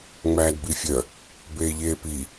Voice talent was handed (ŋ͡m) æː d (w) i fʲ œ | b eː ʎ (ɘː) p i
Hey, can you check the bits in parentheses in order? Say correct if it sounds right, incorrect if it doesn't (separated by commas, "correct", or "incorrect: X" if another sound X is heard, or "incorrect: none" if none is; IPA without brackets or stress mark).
correct, incorrect: b, incorrect: eː